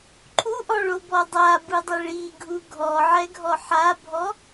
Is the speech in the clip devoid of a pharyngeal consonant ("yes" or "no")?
no